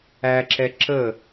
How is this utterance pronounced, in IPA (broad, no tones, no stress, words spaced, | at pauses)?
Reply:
æǁɛ ǁə